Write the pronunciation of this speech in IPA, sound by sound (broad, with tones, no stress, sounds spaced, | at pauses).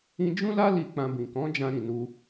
ĩ˧ d͡ʒ ũ˦ l a˦ l i˧ k͡p ã˧ b ĩ˨ k ɔ̃˨˦ d͡ʒ ã˧ ɾ ĩ˨ n u˧